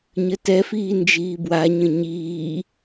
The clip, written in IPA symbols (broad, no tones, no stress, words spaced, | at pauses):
ɲətɛfiː nd͡ʒiːbwaɲə̃ ɲiː